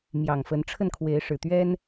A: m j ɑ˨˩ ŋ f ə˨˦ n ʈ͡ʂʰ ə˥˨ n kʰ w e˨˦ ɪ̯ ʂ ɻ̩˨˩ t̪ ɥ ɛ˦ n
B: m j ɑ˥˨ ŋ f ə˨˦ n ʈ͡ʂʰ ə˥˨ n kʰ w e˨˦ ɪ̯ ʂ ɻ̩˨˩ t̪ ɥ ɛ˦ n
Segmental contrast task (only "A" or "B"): A